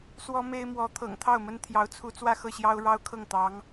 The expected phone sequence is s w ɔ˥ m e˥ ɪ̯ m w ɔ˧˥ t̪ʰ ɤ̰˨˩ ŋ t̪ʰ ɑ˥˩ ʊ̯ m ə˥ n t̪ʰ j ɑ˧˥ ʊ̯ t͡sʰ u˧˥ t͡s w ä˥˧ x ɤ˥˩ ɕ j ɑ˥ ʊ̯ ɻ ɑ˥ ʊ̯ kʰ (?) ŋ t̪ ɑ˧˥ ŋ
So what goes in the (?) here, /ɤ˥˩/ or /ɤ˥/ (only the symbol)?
ɤ˥˩